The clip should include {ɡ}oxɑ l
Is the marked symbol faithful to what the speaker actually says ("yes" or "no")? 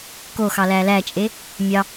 no